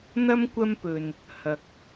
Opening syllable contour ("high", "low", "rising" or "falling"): high